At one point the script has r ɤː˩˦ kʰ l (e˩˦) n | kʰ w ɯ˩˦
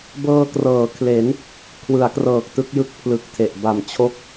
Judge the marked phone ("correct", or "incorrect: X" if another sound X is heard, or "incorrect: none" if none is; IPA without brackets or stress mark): correct